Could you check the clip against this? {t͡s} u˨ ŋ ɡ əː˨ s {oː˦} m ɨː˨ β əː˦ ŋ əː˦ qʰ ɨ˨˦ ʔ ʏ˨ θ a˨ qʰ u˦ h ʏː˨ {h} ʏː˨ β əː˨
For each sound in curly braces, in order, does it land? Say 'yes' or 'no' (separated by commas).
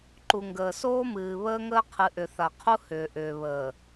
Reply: no, yes, no